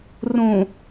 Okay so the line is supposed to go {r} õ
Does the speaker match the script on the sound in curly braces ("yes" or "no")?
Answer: yes